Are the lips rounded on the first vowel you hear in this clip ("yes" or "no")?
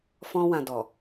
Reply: yes